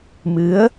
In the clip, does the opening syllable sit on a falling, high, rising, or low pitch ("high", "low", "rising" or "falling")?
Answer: rising